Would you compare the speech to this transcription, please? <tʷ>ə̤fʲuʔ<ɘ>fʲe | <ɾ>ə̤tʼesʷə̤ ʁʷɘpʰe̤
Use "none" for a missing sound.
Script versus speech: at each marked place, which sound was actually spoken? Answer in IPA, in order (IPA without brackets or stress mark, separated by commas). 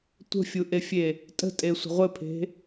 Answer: tʷ, e, tʼ